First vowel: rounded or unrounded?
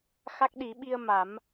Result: unrounded